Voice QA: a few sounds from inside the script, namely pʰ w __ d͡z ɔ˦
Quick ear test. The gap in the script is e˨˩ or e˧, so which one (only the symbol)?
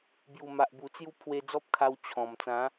e˧